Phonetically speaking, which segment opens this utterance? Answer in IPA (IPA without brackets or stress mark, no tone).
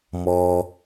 m